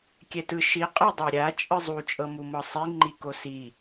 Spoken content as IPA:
kʲ ɛ t ɯ ʃ i qʼ ɛ dˤ a ɾʲ a t͡ʃʼ ɯ zˤ u t͡ʃʼ ɤ m u m ɤ sˤ i ŋ͡ǃ i k o s i

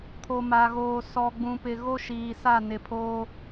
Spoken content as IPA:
kʰ o˨ m a˨ ɣ oː˨ s ɔ˨ ɡ͡b ũ˨ p ɪ˨ ɣ o˦ ʃ iː˨ s a˦˨ n ɪ˨ pʰ oː˦

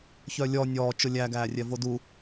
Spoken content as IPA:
ç œ lʲ ɔ nʲ ɔː t͡ʃ ʊ lʲ æ ɡ æː rʲ ɛ v o d u

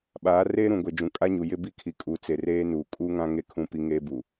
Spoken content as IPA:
ɓ aː˨˦ r eː˦ ɾ ũ˨ ɡʷ e˨ d͡ʒ ũ˨ kʼ a˦ ɲ u˨ j ɪ˦ b i˦ kʰ i˨ kʼ uː˨ t͡s e˨ r eː˦ n uː˨ kʼ uː˦ ŋ ã˦ ŋ e˦˨ kʰ ũ˦ p i˦ ŋ eː˦ b u˨

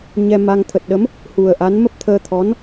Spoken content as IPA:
ɲ ɛ˧ m a˧ ŋ t̪ʰ ə˨˩ t̚ ɗ ə˨˦ m | h u˨˩ ə̯ ʔ a˨˦ n m ə˦˥ p̚ t̪ʰ əː˧ t̪ʰ ɔ˨˦ n

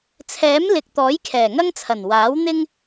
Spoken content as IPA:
t͡sʰ ɛː˨˥ m l ɪ˨ k̚ t̪ ɔː˨˥ j kʰ ɛː˨˩ ŋ ɐ˥ ŋ t͡sʰ ɐ˨˩ n w aː˨˥ w n̪ ɪ˥ ŋ

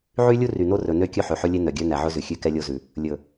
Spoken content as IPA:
ʕ y˦ lʲ u˦ r y˨ n o˦ r ɵ˨ n ø˦ kʲ ɵ˦ ħ ø˨ ħ ɵ˦ lʲ e˦ n œ˨ ɡʲ œ˦ n æ˨ ʕ ɵ˦ z ʉ˨ xʲ ʉ˦ k ɛ˦ lʲ o˦ z ʉ˨ | lʲ ɵ˨

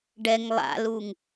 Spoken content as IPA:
ɖ ɛ ŋ lˠ a̰ l u ŋ

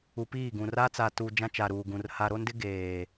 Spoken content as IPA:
u˨ p iː˦˨ ɡ ũ˨ r a˦ t͡s a˨ t u˨ d͡ʒ ã˦ t͡ʃ a˨ ɾ uː˨ ɡ ũ˨ r h a˨ ɾ o˦ n d ɪ˦ ɡ eː˨

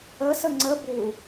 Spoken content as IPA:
ə s ə ŋ͡ǀ ə b u

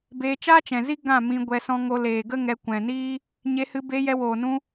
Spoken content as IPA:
b eː˧ t͡ʃ aː˦ t͡ʃ ɛ̃˨ z i˦ ɡ ã˦˨ m ĩ˧ ɡʷ ɛ˧ s ɔ̃˧ ŋ o˧ l eː˨ ɡ ə˦ ŋ ɛ˧ kʷ ɛ̃˨ n iː˦ | ɲ e˧ h ɨ˧ b e˧ j ɛ˧ w oː˨ n ũ˧

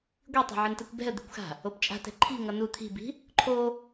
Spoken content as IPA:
ɡʷ i tˤ ɛ̤ ʕ ɯ n t ɛ kʷ b ɛ̤ ə̯ d̪ i̤ kʷ x a̤ | o p t͡ʃʼ a̤ t ɛ̤ ǃʰ i̤ ŋ ʌ n u t̪ʰ i̤ b i̤ | ǃʰ o

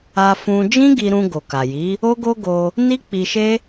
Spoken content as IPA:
a˧ f ũ˧ d͡ʒ ĩ˦ ɡ i˧ ɾ ũ˧ ɡ o˨ k a˨ j i˨˦ | o˦ ɡ o˦ ɡ o˧ | n i˦ k͡p i˧ ʃ e˦

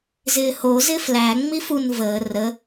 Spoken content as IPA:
z ɪː h o z ɪ f l æ ŋ͡m i f u n v əː r ə

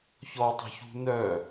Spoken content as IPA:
ç ɔ tˤ ə̤ ç ṳ n œ

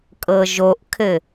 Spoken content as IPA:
kʼ ɤ ʒ o ʔ kʰ ɘ

